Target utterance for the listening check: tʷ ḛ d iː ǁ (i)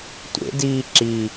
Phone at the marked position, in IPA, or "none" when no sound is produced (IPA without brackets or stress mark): i